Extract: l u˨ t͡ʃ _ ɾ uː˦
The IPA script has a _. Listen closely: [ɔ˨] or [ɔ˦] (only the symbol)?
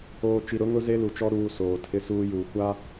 ɔ˦